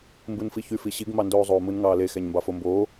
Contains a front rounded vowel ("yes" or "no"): yes